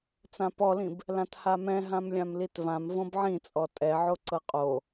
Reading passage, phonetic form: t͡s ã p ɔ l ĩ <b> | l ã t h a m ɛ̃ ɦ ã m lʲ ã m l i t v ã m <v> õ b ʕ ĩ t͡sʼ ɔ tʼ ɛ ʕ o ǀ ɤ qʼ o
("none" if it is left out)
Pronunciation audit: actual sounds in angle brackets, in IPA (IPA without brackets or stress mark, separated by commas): b, v